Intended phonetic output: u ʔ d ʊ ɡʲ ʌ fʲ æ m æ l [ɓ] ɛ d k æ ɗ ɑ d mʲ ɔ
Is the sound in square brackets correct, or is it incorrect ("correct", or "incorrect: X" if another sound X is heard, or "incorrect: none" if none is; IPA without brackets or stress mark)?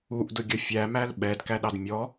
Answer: correct